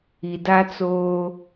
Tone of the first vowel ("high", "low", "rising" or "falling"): low